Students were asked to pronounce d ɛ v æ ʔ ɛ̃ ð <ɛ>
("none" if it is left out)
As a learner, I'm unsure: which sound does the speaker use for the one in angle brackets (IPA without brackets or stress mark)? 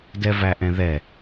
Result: ɛ